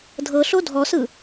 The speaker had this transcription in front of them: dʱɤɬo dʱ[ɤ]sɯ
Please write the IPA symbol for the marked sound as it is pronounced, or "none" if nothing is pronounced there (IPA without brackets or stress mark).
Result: ɔ